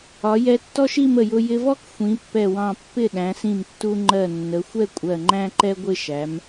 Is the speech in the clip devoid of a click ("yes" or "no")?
no